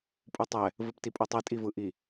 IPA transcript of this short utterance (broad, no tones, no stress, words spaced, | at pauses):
pʼutˤɛ | vɯptipʼotˤi tʼivɯʔi